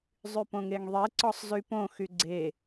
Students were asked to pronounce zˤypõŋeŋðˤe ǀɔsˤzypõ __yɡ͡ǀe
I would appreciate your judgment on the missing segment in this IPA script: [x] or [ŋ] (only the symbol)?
x